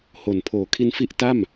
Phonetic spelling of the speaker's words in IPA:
h o˨˩ n pʰ oː˨˩ kʰ i˧ n f i˦˥ ʔ t a˥˩ m

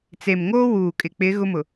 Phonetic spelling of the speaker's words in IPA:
t͡s e˨ m ŋ oː˦ w uː˨ kʼ ɪ˨ k͡p ɪ˨˦ ɣ ʊ˦ m ʊ˨

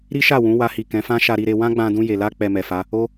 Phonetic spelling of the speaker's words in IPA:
ɾ i˦ ʃ a˦˨ w ũ˨˦ w a˧ h i˨ k ɛ̃˨˦ f ã˦ ʃ a˧ ɾ i˧ ɾ e˧ w ã˦ ɡ͡b ã˧ d ũ˧ j e˨ l a˧ k͡p ɛ˨ m ɛ˨ f a˨˦ | o˦

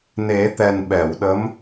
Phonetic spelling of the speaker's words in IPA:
n e˨˩˦ t̪ ɛ˨˩ n ɓ ɛ˨˩˨ w ɗ ə˧˥ m

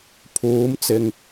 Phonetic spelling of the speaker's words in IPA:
pʰ uː˨˥ m t͡s ɪ˨ ŋ

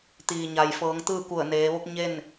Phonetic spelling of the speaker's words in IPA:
t̪ iː˩ ɲ a˩ j f ɤː˩˧ ŋ t̪ ɯː˥˨ k u˧˩ ə̯ n eː˩˧ ʋ o˧˥ k̚ ɲ e˥˨ n

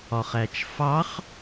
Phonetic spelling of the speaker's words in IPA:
ɒ χ æ t͡ʃ f ɑ χ

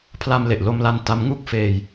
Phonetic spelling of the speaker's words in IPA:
pʰ l a˧ m l e˨˩ ʔ l o˧ m l a˧ n t a˦˥ m ŋ u˥˩ k̚ f eː˧ j

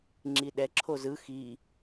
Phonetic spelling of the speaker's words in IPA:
ŋ͡ǁ i ɗ ɛ ǁʰ o z ɯ x i

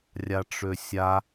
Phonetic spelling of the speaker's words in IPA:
rʲ a ʈ͡ʂ ø sʲ a

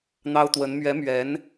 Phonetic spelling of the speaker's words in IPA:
n̪ ɑ˥ ʊ̯ t̪ w ə˧˥ n m ɥ ɛ˧˥ m ɥ ɛ˧˥ n

